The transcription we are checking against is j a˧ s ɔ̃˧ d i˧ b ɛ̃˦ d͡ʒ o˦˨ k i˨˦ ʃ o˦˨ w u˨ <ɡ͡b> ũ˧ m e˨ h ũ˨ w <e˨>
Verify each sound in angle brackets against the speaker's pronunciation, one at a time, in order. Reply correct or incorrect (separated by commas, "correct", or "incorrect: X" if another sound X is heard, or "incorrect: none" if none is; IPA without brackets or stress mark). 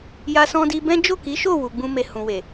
correct, correct